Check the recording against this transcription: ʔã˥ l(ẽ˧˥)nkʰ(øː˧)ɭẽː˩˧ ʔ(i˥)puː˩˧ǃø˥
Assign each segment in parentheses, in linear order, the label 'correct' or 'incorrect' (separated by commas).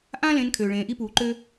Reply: correct, incorrect, correct